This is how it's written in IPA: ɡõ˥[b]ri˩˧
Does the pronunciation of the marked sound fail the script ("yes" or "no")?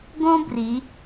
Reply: no